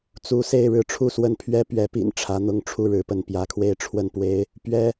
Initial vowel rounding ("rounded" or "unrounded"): rounded